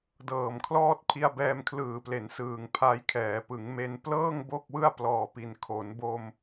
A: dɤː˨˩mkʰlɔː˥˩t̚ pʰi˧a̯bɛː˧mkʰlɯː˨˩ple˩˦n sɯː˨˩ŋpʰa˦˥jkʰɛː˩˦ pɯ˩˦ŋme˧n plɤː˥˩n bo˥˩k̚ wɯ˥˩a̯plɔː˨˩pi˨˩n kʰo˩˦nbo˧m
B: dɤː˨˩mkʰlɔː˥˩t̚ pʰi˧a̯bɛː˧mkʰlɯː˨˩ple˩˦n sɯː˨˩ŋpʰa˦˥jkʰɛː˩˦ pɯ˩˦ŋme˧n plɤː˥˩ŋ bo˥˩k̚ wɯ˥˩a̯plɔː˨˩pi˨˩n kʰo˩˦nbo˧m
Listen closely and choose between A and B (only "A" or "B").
B